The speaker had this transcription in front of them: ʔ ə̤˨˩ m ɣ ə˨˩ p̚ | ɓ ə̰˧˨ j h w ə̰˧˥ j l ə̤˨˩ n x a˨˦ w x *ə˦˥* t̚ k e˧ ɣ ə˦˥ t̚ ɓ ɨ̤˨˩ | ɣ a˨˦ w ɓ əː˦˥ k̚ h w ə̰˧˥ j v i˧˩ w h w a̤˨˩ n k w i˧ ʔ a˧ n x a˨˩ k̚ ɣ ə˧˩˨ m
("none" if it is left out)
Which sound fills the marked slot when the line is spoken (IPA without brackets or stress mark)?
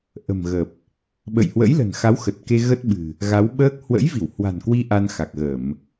ə˨˩